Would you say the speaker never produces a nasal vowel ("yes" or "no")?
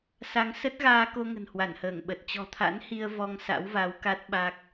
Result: yes